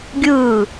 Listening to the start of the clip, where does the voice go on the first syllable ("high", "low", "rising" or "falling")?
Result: falling